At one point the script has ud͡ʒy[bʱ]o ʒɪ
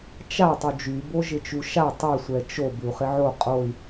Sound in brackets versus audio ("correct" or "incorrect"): incorrect